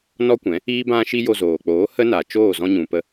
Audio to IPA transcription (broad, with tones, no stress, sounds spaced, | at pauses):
n ɔ˦ kʷ ɛ̃˨˦ | iː˦ b ã˦ ʃ i˦ j o˧ z oː˨ k͡p oː˨˦ h ə˦ n a˨ t͡ʃ oː˦˨ z ɔ̃˧ ɲ ũ˨ p ə˧